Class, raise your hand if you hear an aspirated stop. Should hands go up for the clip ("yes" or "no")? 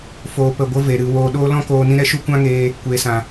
no